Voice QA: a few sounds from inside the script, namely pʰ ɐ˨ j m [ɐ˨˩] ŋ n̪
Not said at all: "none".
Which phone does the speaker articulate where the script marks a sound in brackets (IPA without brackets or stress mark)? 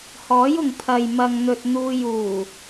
ɐ˨